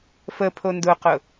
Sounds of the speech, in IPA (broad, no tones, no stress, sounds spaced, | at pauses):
f ə pʰ o n d ʊ q ʊ